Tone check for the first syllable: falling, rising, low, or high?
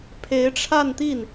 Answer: rising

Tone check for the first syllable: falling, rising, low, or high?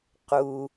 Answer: low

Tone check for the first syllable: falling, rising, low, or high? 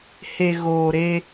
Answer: low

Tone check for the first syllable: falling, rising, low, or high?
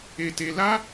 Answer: high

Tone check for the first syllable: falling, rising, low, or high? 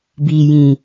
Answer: low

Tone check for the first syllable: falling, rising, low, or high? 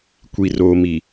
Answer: low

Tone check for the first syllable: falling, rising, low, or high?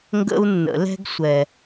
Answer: high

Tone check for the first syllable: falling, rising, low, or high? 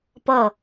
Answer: falling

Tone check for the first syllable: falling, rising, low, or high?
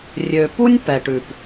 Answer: low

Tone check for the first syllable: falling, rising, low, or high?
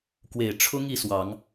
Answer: low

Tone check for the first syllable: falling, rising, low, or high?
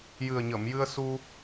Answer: low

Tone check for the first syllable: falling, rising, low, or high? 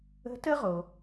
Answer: rising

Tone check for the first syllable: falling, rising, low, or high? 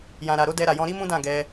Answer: low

